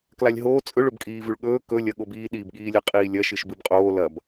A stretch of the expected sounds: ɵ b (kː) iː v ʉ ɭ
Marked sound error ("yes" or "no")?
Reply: yes